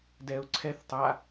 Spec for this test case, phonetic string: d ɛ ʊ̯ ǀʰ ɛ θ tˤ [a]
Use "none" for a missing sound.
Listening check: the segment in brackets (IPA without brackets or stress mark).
a